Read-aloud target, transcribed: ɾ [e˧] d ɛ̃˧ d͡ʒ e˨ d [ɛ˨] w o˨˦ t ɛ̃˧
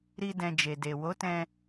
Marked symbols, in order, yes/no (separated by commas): no, no